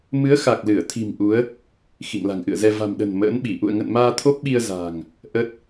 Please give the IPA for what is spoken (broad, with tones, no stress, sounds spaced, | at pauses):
m ɨ˨˦ ə̯ x a˨˩ k̚ l ɨ˧˩ ə̯ t̪ʰ i̤˨˩ m ʔ u˨˦ ə̯ | x ḭ˧˨ ŋ l a̤˨˩ ŋ ʔ ɨ̰˧˨ ə̯ z ɛ˧ v a̤˨˩ m ɗ ə̤˨˩ n m ə̰ː˧˥ n ɓ i˧˩ ʔ ṵ˧˨ ə̯ ŋ ə̰˧˨ n m aː˧ t̪ʰ o˦˥ p̚ ɓ i˧ ə̯ z a̤ː˨˩ ŋ | ʔ ə˦˥ t̚